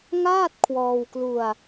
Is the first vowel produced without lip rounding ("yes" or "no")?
yes